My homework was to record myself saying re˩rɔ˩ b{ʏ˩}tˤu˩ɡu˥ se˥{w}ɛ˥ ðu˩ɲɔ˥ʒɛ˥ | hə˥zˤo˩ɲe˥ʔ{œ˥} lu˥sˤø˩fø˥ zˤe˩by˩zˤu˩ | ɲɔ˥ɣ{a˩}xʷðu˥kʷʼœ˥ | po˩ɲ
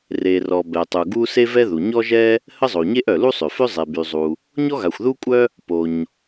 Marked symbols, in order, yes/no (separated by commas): no, no, no, yes